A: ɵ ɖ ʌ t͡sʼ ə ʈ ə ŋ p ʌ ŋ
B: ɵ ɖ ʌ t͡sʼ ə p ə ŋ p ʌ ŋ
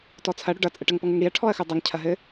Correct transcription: A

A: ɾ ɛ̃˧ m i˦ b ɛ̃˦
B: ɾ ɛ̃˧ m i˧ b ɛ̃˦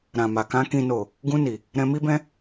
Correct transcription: A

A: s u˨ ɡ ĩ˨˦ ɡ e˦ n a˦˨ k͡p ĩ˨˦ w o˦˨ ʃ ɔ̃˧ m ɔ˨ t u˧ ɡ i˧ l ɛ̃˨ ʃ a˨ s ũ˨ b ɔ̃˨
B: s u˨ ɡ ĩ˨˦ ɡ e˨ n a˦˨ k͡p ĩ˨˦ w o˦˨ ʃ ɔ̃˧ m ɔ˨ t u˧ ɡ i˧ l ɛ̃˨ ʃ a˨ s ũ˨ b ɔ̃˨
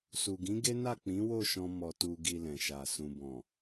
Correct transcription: A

